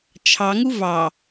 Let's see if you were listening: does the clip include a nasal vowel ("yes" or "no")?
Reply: no